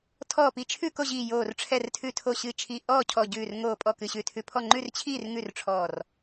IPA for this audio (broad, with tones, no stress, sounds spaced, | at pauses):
tʰ ɔː˧˩ p i˧˩ t͡ʃʰ ʉ˥˨ k o˥˨ ʑ iː˧˩ j oː˧˩ r ʈ͡ʂʰ ɛ˧˩ r tʰ ʉ˧˩ tʰ o˧˩ ɕ ɨ˧˩ t͡ʃʰ i˧˩ ʔ ɔː˥˨ cʰ ɔ˧˩ ɟ ʉː˧˩ r ŋ oː˧˩ pʼ ɔ˥˨ k ɨ˧˩ ɕ ʉ˥˨ tʰ ʉ˧˩ pʰ ɔ˥˨ ŋ͡ǃ ʉ˥˨ r t͡ɕʰ iː˥˨ r ŋ ʉ˥˨ r ʈ͡ʂʰ ɔː˧˩ r